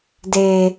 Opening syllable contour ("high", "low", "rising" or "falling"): low